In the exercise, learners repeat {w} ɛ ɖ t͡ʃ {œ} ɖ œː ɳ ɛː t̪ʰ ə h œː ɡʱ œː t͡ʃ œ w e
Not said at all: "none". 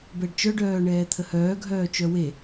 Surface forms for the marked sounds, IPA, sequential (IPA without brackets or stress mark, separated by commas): b, œ